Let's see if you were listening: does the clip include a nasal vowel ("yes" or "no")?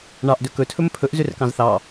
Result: yes